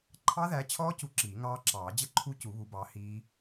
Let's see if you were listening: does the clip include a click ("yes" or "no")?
yes